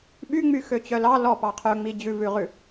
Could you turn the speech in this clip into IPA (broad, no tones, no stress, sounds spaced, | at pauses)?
ɓ y ŋ͡m y x ø t͡ɕ œ l ɑ l ɔ p ɑ qʰ œ ŋ͡m i d͡ʑ ʉ v ʉ ʁ ʉ